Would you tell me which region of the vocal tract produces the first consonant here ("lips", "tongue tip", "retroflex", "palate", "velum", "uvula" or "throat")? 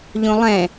palate